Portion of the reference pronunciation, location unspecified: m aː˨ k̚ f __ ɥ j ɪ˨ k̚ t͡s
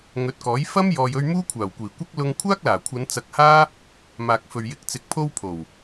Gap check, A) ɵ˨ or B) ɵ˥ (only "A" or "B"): A